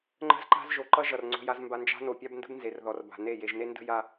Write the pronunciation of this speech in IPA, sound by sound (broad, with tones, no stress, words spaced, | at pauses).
ŋ͡ǃə̤˦zǃa̤˦zʒo˨ ǃʌ˦ʒʌ˨r ŋ͡ǀo̤˦ja˦zmba˦ nd͡ʒa̤˦no˨ pʲa˦bndə̤˦b nze˨rðɔ˨r ba̤˨ne˦˨ je˨ʒne˦ndə̤˦ ja˦